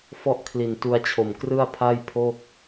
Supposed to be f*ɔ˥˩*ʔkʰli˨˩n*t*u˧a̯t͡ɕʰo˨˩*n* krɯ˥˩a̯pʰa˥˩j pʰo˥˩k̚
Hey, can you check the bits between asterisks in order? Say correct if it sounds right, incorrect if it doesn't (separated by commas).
correct, correct, incorrect